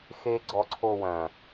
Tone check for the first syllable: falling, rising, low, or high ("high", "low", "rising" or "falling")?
high